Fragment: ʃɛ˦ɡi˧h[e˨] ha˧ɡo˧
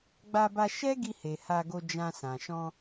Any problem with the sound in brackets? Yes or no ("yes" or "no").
no